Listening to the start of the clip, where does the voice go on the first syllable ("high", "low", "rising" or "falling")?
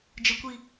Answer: high